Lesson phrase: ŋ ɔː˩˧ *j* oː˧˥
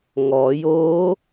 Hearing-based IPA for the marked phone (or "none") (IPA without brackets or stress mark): j